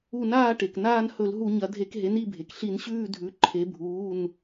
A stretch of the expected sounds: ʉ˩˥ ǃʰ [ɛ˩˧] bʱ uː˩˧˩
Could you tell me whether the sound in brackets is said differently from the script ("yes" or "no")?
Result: yes